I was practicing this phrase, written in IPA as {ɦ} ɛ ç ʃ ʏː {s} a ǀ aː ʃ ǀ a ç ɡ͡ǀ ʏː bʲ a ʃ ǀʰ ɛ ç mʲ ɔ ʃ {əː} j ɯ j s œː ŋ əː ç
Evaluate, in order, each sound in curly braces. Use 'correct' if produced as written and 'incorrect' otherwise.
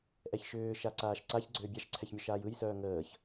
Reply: incorrect, incorrect, incorrect

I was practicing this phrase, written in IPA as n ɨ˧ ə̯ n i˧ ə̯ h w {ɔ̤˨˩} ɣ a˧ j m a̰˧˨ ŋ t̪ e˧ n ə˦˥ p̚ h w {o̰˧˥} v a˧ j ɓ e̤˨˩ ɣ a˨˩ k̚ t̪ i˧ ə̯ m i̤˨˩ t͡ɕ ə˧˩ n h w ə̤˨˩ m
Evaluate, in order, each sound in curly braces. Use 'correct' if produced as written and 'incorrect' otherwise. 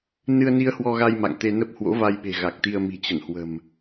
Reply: incorrect, correct

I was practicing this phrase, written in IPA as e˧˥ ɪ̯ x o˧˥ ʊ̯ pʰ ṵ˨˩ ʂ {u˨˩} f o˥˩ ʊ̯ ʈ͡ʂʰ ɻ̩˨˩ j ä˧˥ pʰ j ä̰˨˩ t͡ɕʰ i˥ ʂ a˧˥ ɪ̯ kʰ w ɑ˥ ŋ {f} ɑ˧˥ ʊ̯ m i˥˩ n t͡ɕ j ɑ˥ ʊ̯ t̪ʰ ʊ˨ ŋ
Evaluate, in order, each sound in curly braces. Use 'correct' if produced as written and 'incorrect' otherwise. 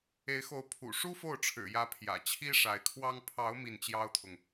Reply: incorrect, incorrect

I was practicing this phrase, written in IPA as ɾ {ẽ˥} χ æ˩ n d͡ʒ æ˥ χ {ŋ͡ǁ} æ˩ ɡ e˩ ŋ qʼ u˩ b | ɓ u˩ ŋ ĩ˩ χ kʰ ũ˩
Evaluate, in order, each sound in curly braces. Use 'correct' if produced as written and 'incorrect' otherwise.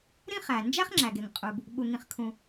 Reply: incorrect, correct

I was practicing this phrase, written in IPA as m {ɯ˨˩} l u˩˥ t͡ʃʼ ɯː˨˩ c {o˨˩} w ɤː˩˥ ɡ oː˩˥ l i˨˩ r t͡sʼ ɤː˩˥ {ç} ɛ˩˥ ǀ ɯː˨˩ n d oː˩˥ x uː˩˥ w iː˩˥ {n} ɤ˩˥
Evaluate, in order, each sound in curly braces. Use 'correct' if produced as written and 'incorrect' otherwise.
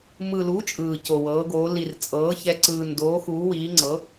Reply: correct, correct, correct, incorrect

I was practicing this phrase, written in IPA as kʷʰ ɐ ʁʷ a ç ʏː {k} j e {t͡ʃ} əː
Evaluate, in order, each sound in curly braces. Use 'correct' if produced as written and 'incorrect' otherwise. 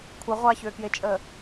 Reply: correct, incorrect

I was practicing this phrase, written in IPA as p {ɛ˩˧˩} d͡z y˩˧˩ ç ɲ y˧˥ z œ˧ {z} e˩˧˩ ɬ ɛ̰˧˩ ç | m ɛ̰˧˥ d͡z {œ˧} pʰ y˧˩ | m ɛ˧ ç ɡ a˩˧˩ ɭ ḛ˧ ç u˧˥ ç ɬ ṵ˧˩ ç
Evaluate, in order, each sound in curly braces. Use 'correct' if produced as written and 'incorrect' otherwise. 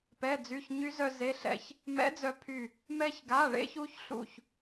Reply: correct, correct, correct

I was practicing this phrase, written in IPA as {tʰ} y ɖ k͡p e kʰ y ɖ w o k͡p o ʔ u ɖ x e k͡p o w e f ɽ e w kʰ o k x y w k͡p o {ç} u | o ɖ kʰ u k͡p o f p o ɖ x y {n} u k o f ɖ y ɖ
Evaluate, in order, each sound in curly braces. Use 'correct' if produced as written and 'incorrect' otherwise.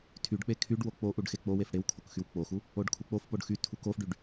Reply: correct, incorrect, incorrect

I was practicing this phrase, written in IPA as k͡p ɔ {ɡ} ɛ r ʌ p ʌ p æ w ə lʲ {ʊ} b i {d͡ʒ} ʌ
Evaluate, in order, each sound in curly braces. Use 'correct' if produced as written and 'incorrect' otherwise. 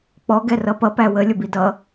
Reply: correct, correct, incorrect

